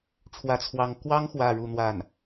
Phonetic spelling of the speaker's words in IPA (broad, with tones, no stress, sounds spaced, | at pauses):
ʈ͡ʂʰ w ä˥ t͡sʰ w ɑ˥ ŋ k w ɑ˥ ŋ x w ä˥˧ ɻ u˥˧ n̪ w a˥˩ n